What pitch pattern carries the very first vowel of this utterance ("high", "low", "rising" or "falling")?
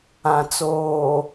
low